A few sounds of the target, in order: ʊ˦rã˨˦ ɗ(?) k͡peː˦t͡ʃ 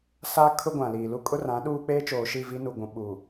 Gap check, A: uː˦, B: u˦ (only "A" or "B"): A